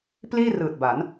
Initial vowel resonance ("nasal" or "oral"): oral